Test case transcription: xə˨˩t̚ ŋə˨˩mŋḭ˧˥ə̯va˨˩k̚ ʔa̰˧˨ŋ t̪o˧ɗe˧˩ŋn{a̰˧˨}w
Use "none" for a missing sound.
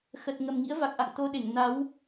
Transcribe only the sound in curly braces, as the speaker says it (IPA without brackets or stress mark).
a˨˦